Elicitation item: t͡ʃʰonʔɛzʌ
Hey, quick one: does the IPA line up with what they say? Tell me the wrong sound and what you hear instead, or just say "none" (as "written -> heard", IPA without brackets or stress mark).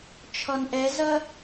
o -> ɔ